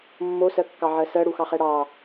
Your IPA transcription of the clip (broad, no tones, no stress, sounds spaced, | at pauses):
mː o s ɜ kː ɑ ʕ ɜ s ɜ ɽ u x ɑ χ ɛ ɽ ɑ